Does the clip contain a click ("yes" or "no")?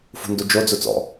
no